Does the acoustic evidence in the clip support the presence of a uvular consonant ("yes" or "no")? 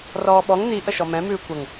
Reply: no